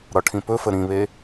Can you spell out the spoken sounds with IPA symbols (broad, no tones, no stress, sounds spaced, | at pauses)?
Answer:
ɾ ɒ ʈʰ ĩ p ɵ f ə ɾ ĩ β e